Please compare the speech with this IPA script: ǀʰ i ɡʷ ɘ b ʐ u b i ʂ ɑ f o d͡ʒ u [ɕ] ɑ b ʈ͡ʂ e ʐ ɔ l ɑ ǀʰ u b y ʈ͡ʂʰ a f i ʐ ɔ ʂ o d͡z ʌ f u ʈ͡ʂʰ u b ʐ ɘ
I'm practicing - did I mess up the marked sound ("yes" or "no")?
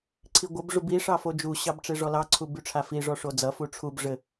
no